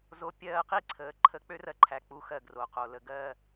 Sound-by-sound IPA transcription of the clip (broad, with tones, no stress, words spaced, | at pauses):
zo˧pʲɜː˦˨qi˦ ǀʰəː˨ǃʰə˦˨ k͡pø˦rɜ˧ǃʰæ˨ k͡pu˧xɜ˧ɡro˨qo˨ lə˨ɡɜː˧